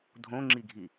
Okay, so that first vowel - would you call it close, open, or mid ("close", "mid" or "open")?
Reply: mid